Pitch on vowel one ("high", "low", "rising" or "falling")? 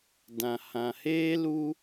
low